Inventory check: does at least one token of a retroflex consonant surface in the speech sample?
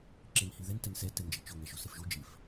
no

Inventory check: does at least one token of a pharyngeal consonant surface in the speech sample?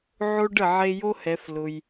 yes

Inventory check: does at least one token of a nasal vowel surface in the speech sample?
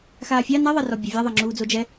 no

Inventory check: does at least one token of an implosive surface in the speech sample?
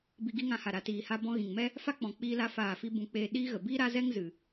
yes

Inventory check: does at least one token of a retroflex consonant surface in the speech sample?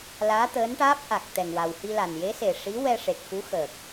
yes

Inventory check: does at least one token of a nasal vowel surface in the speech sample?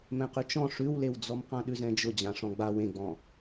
yes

